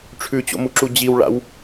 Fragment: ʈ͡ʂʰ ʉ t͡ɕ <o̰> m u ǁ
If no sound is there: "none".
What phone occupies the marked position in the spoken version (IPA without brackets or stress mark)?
o̰